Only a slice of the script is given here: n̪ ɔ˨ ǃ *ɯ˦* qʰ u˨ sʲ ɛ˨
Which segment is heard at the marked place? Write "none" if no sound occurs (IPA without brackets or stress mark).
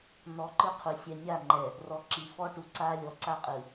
ɯ˦